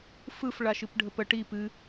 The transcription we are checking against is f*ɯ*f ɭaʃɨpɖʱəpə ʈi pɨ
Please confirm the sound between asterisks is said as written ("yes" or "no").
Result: yes